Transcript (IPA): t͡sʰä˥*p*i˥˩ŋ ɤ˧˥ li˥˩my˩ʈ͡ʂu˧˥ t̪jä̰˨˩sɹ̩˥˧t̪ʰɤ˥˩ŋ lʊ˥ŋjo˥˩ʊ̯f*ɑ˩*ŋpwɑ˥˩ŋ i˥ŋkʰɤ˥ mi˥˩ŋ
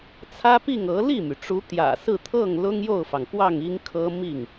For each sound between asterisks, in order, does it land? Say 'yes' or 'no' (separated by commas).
yes, yes